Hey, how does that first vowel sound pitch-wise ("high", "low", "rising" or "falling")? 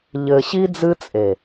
low